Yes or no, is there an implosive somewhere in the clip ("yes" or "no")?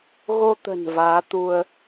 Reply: no